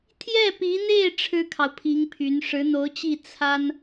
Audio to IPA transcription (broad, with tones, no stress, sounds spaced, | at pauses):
t̪ʰ j ɛ˥˩ p i˧˥ n̪ e˥˩ ɪ̯ ʈ͡ʂʰ ɻ̩˥ kʰ ɑ˨ ʊ̯ pʰ i˧˥ ŋ pʰ y˧˥ n ʂ ɻ̩˧˥ n̪ o˧˥ ʊ̯ t͡ɕ i˥˩ t͡sʰ a˥ n